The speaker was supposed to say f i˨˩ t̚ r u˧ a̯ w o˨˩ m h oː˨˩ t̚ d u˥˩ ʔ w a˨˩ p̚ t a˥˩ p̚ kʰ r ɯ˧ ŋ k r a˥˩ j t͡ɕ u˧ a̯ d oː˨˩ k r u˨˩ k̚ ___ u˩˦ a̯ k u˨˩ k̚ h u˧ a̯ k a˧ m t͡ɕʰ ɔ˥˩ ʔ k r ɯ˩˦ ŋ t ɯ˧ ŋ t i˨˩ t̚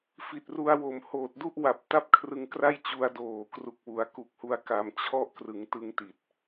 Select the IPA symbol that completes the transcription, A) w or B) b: A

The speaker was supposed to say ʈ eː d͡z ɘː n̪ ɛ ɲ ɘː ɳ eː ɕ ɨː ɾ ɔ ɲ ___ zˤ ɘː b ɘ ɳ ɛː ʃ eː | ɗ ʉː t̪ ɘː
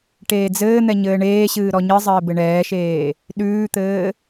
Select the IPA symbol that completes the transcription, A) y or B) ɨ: B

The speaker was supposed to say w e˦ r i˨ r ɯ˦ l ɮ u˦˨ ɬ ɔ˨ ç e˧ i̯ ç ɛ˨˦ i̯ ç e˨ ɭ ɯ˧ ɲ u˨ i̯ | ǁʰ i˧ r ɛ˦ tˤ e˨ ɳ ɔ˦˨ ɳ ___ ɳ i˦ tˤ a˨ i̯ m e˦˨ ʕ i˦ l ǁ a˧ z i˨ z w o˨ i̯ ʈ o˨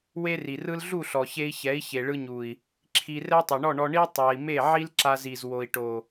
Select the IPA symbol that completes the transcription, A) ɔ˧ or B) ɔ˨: A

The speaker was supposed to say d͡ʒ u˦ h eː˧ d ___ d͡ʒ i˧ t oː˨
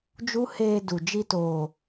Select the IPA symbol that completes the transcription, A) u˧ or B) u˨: B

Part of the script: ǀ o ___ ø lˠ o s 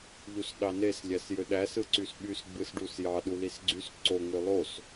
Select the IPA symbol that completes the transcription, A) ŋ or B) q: A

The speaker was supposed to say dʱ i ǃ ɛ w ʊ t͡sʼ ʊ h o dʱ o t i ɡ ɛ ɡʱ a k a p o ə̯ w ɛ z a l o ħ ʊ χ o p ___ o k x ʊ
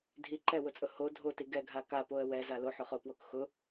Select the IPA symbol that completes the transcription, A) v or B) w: B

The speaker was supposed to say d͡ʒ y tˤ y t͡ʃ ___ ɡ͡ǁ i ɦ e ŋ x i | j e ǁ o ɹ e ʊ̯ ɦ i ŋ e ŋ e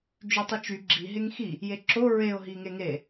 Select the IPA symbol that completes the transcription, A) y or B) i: A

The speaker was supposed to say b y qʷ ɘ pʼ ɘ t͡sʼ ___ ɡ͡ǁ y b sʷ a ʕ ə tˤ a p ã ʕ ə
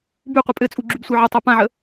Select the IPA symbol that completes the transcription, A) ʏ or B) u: B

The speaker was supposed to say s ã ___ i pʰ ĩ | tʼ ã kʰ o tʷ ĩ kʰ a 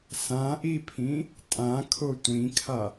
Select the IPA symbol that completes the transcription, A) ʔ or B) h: A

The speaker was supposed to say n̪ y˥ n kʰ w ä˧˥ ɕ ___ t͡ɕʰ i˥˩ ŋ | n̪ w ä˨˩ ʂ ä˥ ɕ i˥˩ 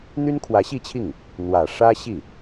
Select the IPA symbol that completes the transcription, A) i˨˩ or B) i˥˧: B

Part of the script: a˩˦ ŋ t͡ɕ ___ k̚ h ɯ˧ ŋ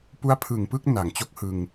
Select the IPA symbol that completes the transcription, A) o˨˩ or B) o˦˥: B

